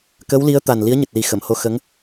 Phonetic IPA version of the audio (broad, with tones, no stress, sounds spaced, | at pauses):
k ə˧˥ w l i˧˥ ə̯ t̪ a˨˩ n l i˧˥ ə̯ ɲ ɨ˨˩ t̚ l i˨˩ x ə˨˩˨ m h o˧ x ə˧˥ ŋ